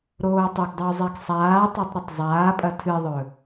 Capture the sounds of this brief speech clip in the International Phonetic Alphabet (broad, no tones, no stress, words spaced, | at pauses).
ɾoːtˤɵɡdˤɨw zˤeɡsˤaːtˤetˤ ɾɐtˤzˤaːpʼɐ tʰɨðˤɵ